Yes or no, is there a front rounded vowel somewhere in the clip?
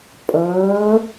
no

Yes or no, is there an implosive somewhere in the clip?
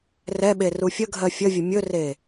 yes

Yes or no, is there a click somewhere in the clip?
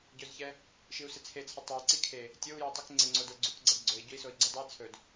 yes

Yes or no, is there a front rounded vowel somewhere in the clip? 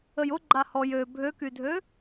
yes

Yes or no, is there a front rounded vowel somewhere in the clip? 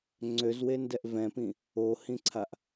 yes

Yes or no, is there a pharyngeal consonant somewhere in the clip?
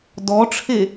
no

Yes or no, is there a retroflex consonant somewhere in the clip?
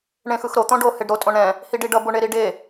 yes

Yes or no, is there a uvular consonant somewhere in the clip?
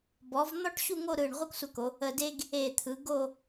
yes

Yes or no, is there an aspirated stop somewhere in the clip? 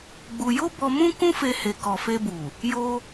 no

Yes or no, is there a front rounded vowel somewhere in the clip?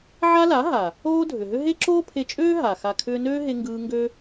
yes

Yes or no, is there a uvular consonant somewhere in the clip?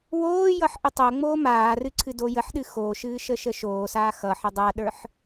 no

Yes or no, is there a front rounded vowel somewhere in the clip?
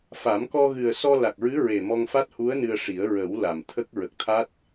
no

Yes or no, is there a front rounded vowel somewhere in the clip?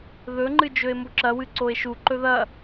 no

